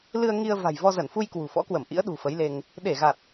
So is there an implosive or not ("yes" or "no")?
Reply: yes